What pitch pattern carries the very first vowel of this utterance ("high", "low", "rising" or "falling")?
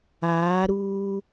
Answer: rising